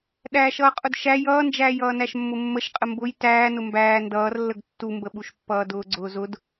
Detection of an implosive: present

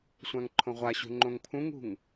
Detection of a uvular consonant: present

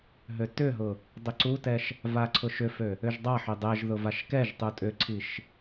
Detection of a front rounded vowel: present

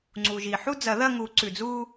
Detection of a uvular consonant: absent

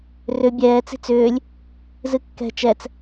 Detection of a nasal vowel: absent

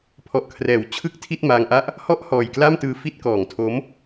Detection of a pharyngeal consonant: absent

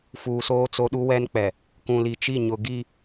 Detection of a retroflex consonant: absent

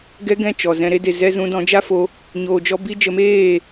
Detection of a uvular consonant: absent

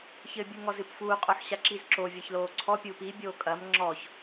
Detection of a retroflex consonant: absent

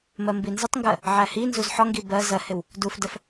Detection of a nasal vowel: absent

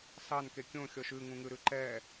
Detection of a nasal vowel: present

